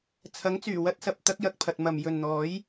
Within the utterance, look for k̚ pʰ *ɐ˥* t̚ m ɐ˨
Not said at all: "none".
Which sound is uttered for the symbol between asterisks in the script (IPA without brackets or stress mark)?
ɐ˨